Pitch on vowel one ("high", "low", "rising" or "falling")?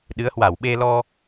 rising